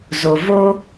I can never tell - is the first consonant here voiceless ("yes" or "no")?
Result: no